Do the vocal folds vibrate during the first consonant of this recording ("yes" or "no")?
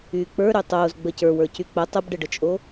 no